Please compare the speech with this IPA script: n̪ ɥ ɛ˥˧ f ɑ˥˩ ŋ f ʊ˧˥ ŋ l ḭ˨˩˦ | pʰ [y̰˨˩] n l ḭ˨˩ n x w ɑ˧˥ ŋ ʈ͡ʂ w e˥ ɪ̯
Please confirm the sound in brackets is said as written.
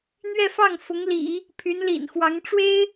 no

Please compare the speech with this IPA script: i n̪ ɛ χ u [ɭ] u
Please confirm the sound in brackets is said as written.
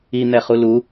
no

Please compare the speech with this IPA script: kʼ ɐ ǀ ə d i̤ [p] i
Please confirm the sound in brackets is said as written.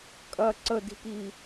yes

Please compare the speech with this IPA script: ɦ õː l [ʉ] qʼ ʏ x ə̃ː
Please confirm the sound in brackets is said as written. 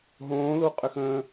no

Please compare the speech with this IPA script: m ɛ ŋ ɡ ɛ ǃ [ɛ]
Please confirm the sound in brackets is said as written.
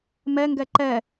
yes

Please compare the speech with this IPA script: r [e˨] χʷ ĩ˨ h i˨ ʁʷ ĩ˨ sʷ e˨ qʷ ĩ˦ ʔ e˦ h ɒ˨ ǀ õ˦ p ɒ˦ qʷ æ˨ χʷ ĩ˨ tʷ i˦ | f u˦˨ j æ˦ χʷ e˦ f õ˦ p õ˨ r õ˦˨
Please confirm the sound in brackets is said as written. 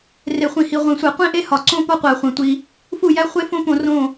yes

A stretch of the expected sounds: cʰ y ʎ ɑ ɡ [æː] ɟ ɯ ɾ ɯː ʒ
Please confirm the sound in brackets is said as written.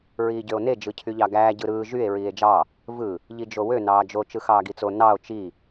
yes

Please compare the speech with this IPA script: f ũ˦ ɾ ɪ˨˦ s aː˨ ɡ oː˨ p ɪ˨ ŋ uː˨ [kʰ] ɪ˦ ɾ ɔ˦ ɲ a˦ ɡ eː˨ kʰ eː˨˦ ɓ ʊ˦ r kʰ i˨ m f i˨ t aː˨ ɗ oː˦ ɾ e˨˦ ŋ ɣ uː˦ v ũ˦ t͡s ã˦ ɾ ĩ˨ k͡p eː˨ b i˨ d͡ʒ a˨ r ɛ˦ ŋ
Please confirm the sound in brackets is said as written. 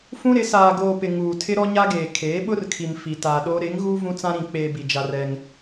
no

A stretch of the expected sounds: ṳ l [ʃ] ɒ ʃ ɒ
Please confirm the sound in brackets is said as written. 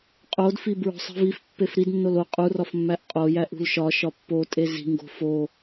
yes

